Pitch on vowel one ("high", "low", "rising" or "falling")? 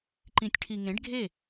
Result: low